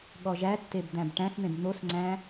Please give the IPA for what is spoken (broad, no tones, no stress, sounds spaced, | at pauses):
ɠ ɔ ʒ æ tː e b d̪ æ̃ b ʈ æ̃ s n̪ ẽ b n̪ o s ŋ͡ǀ æ̃